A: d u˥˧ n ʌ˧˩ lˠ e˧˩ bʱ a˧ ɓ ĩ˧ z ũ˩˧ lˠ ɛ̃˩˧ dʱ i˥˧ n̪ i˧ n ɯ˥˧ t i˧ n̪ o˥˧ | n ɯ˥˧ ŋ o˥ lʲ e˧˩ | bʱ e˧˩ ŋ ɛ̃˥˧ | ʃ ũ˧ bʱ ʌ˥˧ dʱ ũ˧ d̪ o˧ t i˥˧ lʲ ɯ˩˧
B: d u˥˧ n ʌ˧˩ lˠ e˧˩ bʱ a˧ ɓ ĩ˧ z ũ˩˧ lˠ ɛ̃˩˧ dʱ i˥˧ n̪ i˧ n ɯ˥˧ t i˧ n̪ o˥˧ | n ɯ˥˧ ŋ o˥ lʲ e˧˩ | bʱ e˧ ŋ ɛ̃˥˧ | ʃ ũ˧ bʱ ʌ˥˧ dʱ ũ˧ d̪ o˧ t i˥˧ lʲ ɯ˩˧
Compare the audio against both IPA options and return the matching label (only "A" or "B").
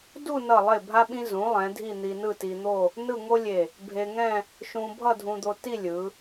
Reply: B